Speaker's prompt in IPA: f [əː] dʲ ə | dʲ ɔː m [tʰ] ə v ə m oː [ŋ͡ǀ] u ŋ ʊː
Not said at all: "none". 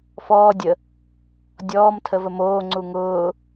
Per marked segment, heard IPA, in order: ɔː, tʰ, ŋ͡ǀ

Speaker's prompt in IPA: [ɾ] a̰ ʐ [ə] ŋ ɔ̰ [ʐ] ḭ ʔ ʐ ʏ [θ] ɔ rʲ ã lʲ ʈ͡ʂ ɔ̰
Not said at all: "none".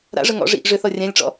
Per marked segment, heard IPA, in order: ɾ, ə, ʐ, θ

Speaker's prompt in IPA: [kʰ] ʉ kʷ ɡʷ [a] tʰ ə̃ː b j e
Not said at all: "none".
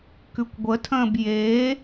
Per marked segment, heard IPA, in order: k, ə

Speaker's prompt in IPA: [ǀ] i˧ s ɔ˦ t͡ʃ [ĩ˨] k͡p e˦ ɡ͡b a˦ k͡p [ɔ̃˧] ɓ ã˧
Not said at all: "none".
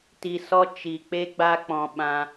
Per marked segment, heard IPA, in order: t, i˨, ɔ̃˧

